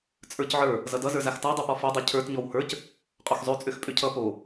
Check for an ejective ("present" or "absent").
present